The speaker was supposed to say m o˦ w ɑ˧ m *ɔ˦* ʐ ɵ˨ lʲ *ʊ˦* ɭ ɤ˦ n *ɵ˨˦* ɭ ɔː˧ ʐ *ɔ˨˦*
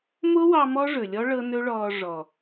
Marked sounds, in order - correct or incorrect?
correct, incorrect, incorrect, incorrect

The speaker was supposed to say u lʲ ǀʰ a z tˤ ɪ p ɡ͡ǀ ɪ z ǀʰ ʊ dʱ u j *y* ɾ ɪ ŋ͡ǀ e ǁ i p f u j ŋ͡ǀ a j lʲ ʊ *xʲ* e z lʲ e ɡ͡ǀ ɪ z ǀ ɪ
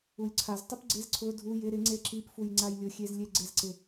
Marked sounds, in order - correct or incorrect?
incorrect, correct

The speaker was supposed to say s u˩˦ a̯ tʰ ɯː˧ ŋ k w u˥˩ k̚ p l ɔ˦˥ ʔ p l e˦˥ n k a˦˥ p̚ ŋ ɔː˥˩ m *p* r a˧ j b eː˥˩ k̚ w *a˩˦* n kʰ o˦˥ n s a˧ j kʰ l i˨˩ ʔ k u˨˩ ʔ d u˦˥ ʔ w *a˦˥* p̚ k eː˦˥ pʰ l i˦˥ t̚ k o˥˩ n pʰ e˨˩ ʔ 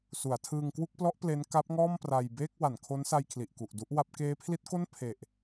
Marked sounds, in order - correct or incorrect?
correct, correct, correct

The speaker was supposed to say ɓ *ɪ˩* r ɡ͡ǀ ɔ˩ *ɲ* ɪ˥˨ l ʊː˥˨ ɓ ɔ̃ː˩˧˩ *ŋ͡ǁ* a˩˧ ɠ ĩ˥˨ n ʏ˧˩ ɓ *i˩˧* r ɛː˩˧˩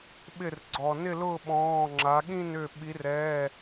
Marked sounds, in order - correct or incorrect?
incorrect, incorrect, correct, correct

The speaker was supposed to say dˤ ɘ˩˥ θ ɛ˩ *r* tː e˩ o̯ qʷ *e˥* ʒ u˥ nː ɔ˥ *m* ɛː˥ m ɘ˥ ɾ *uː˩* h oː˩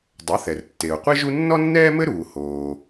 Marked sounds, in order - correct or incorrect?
correct, correct, incorrect, correct

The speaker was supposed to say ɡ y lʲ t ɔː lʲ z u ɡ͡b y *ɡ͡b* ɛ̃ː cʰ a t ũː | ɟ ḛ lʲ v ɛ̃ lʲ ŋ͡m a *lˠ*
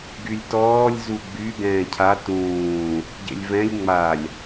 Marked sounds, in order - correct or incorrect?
incorrect, incorrect

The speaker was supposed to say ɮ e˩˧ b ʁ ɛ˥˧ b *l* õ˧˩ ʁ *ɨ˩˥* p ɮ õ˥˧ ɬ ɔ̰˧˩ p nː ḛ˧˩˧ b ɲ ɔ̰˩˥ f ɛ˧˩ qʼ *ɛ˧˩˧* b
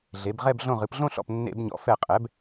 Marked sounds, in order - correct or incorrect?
incorrect, incorrect, incorrect

